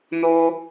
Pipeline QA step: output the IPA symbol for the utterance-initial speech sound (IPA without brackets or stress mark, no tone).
n